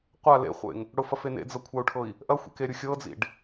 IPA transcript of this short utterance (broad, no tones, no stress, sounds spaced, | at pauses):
qʷ a l ḛ χʷ ḛ ŋ | ɽ ʊ f ɐ f e n ḛ d͡z ɤ kʷʰ a u̯ ʈʰ ɤ i̯ | ʔ ɐ xʷ ḛ k e ɾʲ ʊ xʲ ɤ d͡z ḭ ɖ